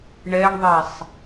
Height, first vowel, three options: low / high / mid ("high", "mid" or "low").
mid